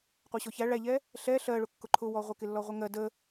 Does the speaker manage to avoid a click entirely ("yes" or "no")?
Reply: no